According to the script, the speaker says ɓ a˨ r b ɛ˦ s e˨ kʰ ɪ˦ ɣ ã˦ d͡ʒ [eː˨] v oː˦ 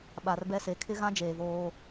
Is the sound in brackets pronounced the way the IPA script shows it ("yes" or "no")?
yes